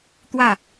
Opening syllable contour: falling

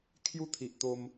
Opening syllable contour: high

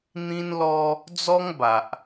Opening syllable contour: high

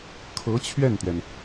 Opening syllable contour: rising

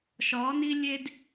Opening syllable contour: rising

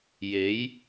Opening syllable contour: rising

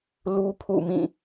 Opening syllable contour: high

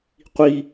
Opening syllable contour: high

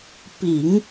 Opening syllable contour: low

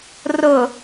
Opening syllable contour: low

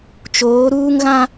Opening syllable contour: rising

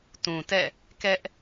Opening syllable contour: low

